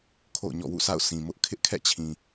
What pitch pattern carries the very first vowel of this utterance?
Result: falling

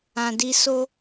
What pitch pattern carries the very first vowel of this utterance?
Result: low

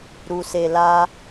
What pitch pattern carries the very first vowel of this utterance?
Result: low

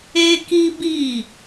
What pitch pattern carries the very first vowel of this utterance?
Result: high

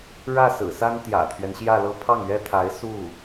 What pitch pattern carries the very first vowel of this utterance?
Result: falling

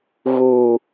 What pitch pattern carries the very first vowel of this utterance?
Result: low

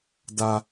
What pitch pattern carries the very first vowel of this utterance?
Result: high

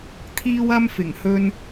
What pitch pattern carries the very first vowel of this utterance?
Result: high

